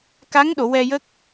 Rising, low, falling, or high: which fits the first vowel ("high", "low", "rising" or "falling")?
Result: rising